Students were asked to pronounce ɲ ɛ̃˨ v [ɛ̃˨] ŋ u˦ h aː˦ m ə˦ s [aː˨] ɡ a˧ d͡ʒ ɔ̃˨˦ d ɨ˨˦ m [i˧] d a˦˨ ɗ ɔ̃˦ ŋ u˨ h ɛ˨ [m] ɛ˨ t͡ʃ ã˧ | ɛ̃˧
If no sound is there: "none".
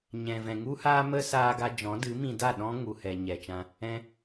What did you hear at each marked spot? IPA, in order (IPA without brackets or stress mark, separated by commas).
ɛ̃˨, aː˧, ĩ˧, ɲ